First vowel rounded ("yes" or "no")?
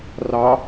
no